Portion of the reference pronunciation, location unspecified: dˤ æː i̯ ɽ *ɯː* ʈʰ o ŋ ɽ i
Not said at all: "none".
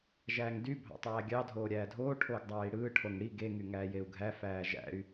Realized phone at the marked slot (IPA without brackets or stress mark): ɯː